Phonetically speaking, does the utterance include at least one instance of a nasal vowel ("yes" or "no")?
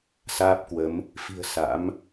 no